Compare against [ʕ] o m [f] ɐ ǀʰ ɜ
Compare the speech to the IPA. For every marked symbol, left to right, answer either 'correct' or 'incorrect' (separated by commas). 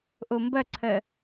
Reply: incorrect, incorrect